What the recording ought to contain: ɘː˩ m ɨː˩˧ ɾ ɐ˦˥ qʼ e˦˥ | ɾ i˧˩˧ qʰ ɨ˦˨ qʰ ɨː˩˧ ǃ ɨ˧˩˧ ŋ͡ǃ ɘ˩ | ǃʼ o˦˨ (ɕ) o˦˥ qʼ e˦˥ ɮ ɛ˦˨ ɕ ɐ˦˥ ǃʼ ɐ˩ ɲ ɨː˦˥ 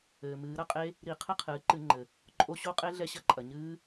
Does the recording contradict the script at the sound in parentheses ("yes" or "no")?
no